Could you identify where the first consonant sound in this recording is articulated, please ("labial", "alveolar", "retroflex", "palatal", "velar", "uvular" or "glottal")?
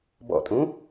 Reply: labial